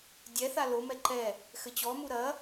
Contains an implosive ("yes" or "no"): no